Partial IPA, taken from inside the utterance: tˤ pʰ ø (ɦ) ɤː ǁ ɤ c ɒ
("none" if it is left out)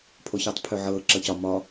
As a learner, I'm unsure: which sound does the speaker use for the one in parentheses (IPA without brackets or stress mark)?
ʕ